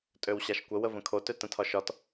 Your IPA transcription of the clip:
tʼøwɕaʃkʷə wəvə̃kʰo tøtə̃tʰɒʃɒt

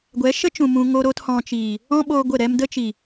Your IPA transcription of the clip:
ɡʷɛ˨˦ʃə˦t͡ʃũ˨ mũ˧ ŋo˦ɾo˦thɔ̃˧t͡ʃiː˨ | ɔ̃˦ɓoː˧ ɡʷə˦˨ɾɛ˦m də˦t͡ʃi˨

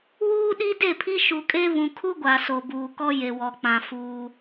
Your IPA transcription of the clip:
wuː˦ɗi˦de˦˨pʰi˦ ʃu˨kʼe˦ βũ˨kʰu˦ɡʷa˨ so˨buː˨kɔ˦ je˨wɔ˨k͡pã˨ fuː˦

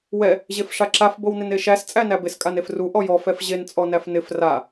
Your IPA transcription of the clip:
wɛ | ʑefʂaǁaf bownɪneʃæs t͡sʼænæbɪs kʼanefru ʔɔjɔ fɛfʑen t͡sʼɔnæfnɪf ra

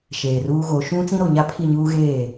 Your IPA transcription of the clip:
ʃeː˨ruː˦ɣo˨˦ ʃũ˦ t͡sĩ˦ɾo˨ɲa˦pʰi˦˨ ɲuː˦ɣeː˦˨

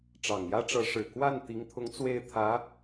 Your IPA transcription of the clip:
ʈ͡ʂɑ˨˩ŋjä˥ʈ͡ʂɤ˧˥ ʂɻ̩˨˩ kwa˥˩n t̪i˧˥ŋt̪ʰʊ˧˥ŋ t͡swe˥˩ɪ̯ t̪ʰä˧˥

